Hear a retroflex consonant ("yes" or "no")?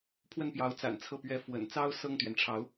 yes